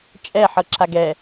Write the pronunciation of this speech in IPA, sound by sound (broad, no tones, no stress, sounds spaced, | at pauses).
t͡ʃʼ ɛ ħ ɤ ǁ a ɡ ɛ